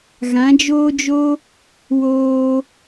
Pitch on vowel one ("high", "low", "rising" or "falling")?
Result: rising